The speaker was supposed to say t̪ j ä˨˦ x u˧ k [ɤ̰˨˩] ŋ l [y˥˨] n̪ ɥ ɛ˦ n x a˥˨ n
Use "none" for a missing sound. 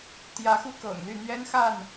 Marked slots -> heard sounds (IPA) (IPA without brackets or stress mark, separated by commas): ɤ̰˨˩, y˥˨